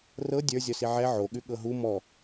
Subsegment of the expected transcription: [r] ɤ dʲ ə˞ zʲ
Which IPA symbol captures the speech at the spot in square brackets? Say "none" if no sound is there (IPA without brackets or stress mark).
r